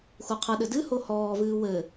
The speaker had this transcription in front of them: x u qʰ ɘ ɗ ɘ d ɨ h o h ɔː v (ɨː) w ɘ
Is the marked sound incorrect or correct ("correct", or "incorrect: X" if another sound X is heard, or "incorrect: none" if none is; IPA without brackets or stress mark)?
correct